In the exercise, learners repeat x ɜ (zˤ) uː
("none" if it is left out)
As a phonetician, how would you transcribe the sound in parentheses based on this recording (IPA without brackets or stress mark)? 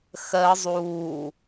zˤ